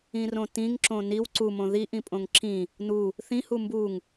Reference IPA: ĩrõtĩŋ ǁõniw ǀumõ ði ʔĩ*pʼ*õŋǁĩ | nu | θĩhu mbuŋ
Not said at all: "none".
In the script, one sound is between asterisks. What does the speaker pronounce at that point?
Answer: pʼ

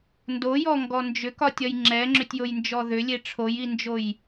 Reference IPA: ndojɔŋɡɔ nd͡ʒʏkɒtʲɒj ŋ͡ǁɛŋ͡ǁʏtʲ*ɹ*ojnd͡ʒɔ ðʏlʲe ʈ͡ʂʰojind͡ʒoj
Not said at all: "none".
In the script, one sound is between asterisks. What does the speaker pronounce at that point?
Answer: j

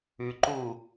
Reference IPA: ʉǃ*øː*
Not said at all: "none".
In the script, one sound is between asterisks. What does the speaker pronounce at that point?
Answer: uː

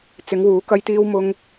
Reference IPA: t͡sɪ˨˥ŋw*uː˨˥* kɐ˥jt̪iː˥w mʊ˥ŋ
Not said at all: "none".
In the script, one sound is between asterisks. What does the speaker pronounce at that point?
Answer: uː˨˥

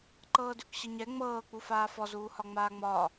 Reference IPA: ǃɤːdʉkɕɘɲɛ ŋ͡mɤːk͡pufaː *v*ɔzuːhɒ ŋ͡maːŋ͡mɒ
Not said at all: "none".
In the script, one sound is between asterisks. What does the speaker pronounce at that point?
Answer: f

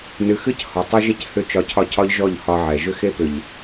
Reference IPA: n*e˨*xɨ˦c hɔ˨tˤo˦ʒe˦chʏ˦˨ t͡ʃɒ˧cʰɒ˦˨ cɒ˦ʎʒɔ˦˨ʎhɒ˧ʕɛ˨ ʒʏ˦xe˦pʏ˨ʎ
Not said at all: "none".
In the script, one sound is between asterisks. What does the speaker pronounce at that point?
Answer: ɨ˨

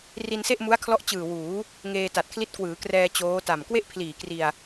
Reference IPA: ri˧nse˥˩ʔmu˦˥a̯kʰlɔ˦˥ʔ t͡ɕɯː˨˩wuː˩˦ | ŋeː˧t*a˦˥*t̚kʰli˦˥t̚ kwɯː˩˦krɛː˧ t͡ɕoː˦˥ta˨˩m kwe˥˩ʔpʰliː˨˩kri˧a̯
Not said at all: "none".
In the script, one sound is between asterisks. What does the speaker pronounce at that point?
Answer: a˨˩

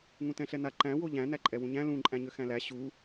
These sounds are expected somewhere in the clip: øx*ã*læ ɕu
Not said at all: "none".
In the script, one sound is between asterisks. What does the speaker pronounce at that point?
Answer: æ̃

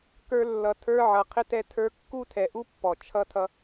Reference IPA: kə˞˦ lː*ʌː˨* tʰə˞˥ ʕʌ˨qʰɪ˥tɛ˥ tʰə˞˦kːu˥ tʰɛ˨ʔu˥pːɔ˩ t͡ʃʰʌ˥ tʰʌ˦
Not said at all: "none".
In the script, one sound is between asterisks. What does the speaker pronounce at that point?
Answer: ʌ˨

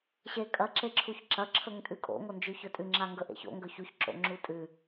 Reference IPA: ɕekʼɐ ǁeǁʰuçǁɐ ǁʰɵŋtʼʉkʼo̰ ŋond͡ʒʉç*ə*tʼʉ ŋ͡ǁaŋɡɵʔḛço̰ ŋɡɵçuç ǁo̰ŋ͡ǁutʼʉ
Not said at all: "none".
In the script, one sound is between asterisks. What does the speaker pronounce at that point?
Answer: ɵ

